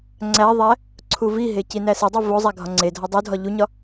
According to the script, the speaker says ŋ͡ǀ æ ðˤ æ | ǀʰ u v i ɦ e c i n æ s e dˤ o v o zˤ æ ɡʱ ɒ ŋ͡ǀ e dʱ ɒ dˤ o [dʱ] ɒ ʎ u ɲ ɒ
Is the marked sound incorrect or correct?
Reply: correct